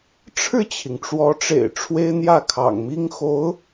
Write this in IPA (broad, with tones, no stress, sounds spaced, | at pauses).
ʈ͡ʂʰ ɻ̩˥˩ t͡ɕʰ i˩ ŋ ʈ͡ʂ w ɔ˧˥ ʈ͡ʂ ḛ˨˩ ɪ̯ ʈ͡ʂʰ w e˥ ɪ̯ n̪ j ä˥˩ kʰ ɑ̰˨˩ ŋ m i˥ ŋ x o˧˥ ʊ̯